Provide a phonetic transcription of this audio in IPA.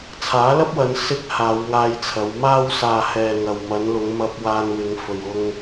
t͡sʰ aː˨˥ l ɐ˥ p̚ w ɐ˨˧ n s ɪ˧ k̚ h aː˨˧ w ŋ aː˧ j t͡sʰ ɐ˨˧ w m aː˧ w s aː˨ h ɛː˨ ŋ ɐ˨ w m ɐ˨˧ n l ʊ˨˧ ŋ m ɐ˧ p̚ w aː˧ n w ɪ˨˧ ŋ f ɵ˨ ɥ ʊ˧ ŋ

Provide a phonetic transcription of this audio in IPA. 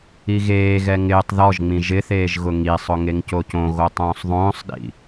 i ɣ eː ɣ ɛ ŋ ɪː tˤ ð ɔ ʒ ŋ͡m ĩ ʒ ɪ θ eː ʒ ɣ ʊ ŋ i sˤ ʊ ŋ e ŋ c o c õ ɣ o tˤ õː sˤ ðˤ õː sˤ ɗ ḭ

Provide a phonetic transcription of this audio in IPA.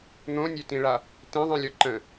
n̪ õ nʲ ø t ĩ ɭ a | t ẽ ðˤ ĩ lʲ ɔ ǃ ə̃

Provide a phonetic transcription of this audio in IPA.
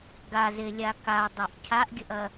ɡ a z e lʲ a k a dˤ a ʔ cʰ a ʔ ɡʲ ə ʔ ɐ

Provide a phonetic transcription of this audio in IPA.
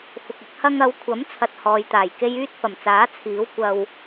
f ʊ˨ k̚ ɪ˧ k̚ h ɐ˧ ŋ ɐ˨˧ w kʷʰ ɐ˨˥ m t͡sʰ ɐ˧ t̚ h ɔː˨ j t̪ aː˨˩ j k e˥ j yː˥ t̚ f ɐ˨˩ m t͡s aː˨˥ t͡sʰ iː˨˥ w kʷ ɐ˧ w

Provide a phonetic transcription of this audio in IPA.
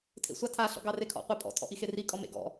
tʰ ḛ sʷ ɑ tʰ a ɬ ɔ̰ ɡ ɑ r e kʰ ɔ̰ qʷ a pʼ ɔ̰ tʰ ɔ̰ ʔ i x e r i kʼ ɔ m ḛ ɡ ɔ̰

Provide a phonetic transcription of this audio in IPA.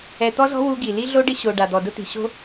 ɛ˨ t̪ ɔ˦ z ɔ̤˦ w u˦ ɡ i˨ l i˦ ɮ o˦ ɖ ɪ˦ ɕ o˨ ɖ a˨ d̪ ɔ˨ d ʊ˦ t̪ i̤˨ ɕ o̤˦

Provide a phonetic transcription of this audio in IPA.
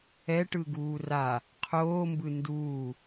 ɛ ʈ ɯ ɡ uː r a | qʰ oː m b ɯ n d uː

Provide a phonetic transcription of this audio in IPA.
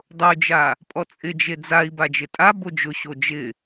dˤ ʊ y̯ d͡ʒ a | pʼ ɔ t͡sʼ ɪ d͡ʒ e d͡z a i̯ b a d͡ʒ ɪ tʼ a b o d͡ʒ ʊ ɕ o d͡ʒ ɪ

